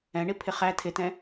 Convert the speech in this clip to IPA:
ɛ̃ ɳ i pʰ ɪ χ æ tʰ ɪ t ɛ̃

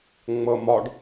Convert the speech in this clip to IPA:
ŋ͡m ɤ m ɒ ɖ

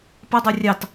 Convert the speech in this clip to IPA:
p ə dˤ o rʲ ɑ t

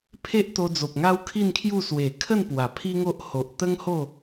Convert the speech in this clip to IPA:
pʰ e˦ ʔ t̪ o˧ d͡z o˨ p̚ ŋ a˦ w kʰ i˥˧ n kʰ j u˥˧ s w e˨˩ kʰ ə˥˧ n p w a˨˩ pʰ i˦ ŋ o˦ ʔ h o˨ ʔ t̪ ə˦ ŋ h o˥˧

